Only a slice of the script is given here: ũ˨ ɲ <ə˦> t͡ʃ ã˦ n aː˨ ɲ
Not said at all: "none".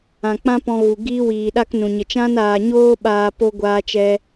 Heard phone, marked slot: ə˨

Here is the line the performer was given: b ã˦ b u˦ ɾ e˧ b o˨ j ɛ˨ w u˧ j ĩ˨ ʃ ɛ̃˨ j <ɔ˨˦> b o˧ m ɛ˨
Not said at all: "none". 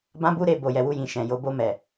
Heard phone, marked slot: o˨˦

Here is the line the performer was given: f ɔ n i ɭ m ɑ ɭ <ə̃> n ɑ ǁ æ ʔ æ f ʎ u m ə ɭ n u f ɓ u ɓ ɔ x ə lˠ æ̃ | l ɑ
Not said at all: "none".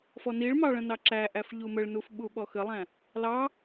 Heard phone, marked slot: ə̃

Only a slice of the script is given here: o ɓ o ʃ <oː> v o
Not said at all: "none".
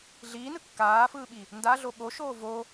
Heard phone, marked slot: oː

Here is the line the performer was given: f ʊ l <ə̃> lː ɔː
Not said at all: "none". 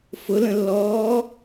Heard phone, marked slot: ə̃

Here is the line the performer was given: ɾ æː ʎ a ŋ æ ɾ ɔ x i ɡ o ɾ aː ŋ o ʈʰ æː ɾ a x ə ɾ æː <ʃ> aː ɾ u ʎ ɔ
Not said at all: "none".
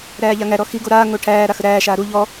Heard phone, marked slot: ʃ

